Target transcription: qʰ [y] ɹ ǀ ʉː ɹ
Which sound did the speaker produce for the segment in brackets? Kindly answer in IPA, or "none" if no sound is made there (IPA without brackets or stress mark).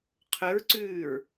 ø